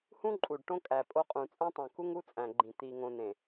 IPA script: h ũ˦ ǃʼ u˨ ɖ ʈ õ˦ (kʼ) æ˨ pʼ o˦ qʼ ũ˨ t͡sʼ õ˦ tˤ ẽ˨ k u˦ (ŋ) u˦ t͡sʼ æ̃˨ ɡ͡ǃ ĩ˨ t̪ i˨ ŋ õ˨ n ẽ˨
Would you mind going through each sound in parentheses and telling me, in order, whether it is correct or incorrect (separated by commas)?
correct, correct